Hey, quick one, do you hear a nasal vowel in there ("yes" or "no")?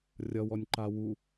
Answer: no